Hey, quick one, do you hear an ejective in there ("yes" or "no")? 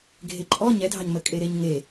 yes